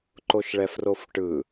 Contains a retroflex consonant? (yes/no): yes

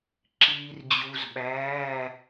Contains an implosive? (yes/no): yes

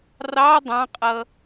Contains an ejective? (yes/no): yes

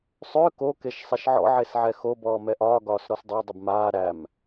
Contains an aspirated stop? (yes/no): no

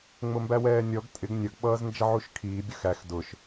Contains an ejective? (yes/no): yes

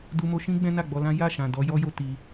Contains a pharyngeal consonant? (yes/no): no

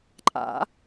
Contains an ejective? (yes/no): yes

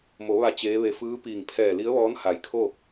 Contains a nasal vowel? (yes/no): no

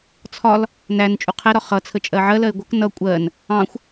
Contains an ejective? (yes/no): yes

